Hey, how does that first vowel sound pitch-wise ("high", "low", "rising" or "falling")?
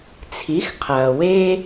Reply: rising